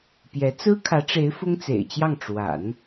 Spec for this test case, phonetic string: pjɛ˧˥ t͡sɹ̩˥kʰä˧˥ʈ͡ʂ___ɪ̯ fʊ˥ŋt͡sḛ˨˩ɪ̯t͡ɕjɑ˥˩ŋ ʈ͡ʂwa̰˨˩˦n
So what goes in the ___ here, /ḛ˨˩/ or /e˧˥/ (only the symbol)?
e˧˥